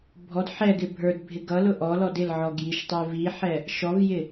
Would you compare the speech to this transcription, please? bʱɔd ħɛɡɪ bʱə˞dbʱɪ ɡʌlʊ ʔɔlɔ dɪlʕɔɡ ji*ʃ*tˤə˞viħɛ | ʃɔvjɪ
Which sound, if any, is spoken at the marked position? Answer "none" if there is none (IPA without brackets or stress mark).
ʃ